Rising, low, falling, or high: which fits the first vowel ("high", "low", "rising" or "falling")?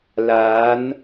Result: rising